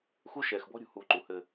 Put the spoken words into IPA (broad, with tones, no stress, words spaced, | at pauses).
xu˦ʃɛː˨xbɔ̤˦ɾʲṳ˨ huː˨ǃu˨ hɘ˦